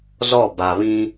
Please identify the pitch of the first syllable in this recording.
falling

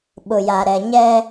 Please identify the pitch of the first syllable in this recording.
low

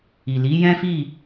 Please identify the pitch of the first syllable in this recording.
low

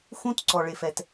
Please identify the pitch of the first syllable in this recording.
high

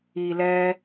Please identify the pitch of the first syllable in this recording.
low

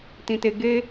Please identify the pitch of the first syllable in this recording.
low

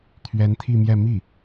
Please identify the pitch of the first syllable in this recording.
rising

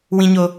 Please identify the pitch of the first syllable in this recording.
high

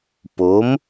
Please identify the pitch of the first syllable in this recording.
rising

